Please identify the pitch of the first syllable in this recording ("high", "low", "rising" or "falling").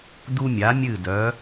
high